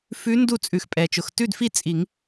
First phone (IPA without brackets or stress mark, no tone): f